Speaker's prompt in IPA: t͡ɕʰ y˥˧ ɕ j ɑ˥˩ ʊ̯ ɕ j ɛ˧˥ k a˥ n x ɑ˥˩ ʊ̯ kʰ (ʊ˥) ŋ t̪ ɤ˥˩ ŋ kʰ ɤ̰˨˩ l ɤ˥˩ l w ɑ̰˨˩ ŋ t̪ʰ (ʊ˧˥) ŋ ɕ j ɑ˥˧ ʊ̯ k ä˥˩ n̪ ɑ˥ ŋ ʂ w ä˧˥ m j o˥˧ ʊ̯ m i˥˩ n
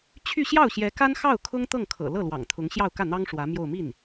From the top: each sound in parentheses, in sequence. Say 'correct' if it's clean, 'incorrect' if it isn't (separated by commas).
correct, correct